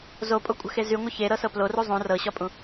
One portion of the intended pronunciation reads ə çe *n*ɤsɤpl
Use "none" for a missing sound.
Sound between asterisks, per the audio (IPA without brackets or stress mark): ɾ